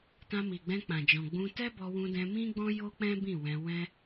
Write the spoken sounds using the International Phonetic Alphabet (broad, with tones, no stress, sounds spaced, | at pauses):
t ã˧ m i˨ ɡ͡b ɛ̃˧ k͡p ã˨ d͡ʒ ɔ̃˨ ɡ͡b ũ˧ t ɛ˦ b ɔ˧ w ũ˧ d ɛ̃˧ m ĩ˦ ɡ͡b ɔ̃˦ j o˦ k͡p ɛ̃˦ b ĩ˦˨ w ɛ̃˧ w ɛ̃˦